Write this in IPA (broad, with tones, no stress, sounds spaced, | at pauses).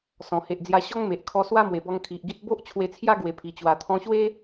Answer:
s ɔ̃˨˩ h e˨ ʔ d͡z j a˧ ɕ ɔ˦ ŋ m e˨ ʔ kʰ ɔ˧ s w a˦ m w e˨˩ b ɔ˧ ŋ kʰ i˨ ʔ ɡ i˦ t̚ b o˦ ʔ t͡ɕʰ w e˧ t͡sʰ j a˦ ɡ w e˨˩ pʰ i˨˩ t͡ɕ w a˨˩ t̪ʰ ɔ̃˧ ɕ w e˦